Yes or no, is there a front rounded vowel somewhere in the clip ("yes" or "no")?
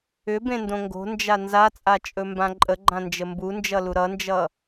yes